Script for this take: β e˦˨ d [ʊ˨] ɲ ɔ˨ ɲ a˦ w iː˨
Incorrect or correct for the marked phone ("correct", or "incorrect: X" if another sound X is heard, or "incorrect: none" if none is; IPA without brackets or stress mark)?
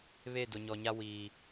correct